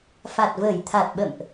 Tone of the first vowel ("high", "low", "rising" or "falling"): low